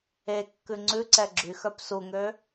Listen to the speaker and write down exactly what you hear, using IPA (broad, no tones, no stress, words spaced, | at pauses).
ekːʉ ŋ͡ǀʉǀɛ ɡ͡ǁyxœp suŋø